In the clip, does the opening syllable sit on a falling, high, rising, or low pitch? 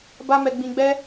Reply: high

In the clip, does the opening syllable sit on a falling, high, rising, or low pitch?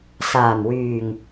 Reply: low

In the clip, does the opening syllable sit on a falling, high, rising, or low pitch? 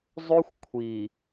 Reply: high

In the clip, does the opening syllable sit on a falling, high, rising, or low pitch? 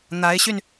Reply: rising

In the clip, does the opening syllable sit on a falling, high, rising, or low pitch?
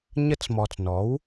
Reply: rising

